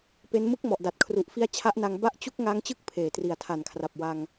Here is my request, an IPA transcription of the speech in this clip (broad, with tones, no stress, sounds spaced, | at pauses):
p e˦˥ n m ɯ˦˥ k̚ m ɔ˨˩ ʔ d a˨˩ t̚ kʰ r u˨˩ ʔ f i˦˥ a̯ t͡ɕʰ a˦˥ ʔ n a˧ ŋ b a˦˥ ʔ t͡ɕ u˦˥ k̚ ŋ a˦˥ ŋ t͡ɕ ɯ˥˩ k̚ pʰ eː˨˩ t r i˨˩ a̯ tʰ a˨˩ n kʰ r a˨˩ p̚ w a˧ ŋ